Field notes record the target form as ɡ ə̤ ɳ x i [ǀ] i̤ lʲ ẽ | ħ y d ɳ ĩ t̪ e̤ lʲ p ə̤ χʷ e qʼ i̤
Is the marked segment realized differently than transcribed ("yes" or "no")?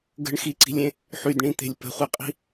no